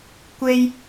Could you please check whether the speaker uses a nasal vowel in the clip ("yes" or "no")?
no